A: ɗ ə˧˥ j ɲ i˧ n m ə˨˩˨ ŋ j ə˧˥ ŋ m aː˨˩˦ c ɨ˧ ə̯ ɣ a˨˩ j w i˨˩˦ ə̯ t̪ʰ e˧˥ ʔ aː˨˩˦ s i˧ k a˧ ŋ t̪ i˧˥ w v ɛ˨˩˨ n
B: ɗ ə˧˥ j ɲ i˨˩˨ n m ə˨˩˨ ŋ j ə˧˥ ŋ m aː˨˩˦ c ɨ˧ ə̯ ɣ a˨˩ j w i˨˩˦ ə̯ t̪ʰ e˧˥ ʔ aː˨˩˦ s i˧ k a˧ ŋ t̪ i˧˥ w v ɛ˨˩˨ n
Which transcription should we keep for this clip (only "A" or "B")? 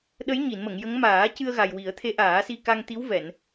B